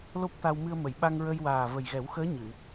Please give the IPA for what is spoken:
lo˦˥p̚t̪a˧w mɨ˧ə̯mə˨˩˨j ɓa˧ŋɹə˧jwaː˨˩ və˨˩jɣɛ˨˩˦wxəː˧˥ ɲɨ˨˩˨

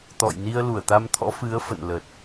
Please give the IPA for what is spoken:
t̪ɔ̰˧˨j ni˧ə̯lu˧˩ə̯t̪a˧mt̪ʰɔ̰˧˥ fɨ˨˦ə̯fə̰˧˨nlə˨˩t̚

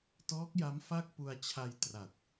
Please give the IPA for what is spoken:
tɔː˦˥k̚ja˦˥m fa˥˩k̚pu˧a̯t͡ɕʰa˧j tra˨˩t̚

